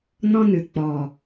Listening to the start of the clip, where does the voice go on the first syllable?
high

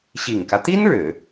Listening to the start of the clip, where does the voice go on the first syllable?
low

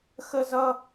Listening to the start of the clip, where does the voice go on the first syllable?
high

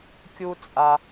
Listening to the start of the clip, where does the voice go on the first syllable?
high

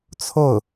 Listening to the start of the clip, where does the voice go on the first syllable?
falling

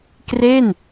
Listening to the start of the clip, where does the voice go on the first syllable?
falling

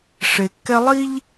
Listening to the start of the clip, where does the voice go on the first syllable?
low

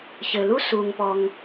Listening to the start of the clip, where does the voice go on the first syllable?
low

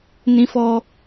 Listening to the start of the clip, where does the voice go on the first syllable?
high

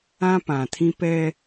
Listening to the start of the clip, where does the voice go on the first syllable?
high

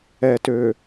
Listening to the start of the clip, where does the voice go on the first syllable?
low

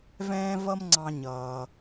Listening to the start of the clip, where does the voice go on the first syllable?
high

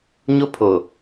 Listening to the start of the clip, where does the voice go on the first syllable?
high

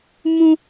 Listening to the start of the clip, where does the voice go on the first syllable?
high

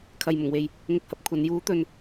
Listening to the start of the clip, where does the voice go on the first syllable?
low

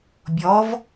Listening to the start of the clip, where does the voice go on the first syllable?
rising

